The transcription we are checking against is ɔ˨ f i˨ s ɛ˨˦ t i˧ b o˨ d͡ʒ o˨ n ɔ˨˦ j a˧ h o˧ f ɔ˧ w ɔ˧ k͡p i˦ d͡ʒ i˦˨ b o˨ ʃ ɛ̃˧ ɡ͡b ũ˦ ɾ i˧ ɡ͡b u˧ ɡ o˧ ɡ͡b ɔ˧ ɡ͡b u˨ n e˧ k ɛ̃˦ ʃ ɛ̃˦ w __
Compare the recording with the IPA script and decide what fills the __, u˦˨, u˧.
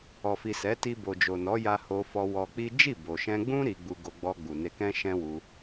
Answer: u˧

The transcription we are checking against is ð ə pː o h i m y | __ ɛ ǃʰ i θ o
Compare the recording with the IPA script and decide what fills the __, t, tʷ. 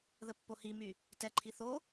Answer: t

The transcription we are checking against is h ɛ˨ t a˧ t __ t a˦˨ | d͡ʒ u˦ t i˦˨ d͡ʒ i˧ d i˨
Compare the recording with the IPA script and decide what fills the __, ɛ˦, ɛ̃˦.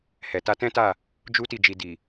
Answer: ɛ̃˦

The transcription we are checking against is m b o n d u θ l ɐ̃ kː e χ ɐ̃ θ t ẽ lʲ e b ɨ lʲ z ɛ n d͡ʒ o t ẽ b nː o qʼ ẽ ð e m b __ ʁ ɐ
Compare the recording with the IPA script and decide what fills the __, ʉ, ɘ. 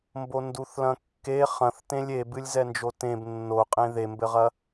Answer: ɘ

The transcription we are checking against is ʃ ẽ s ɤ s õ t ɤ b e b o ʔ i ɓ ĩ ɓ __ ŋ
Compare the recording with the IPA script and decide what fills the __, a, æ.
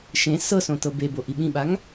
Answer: a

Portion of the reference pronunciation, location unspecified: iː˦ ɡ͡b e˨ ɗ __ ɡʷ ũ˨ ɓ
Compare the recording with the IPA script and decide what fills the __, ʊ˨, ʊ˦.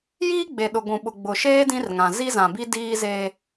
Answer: ʊ˨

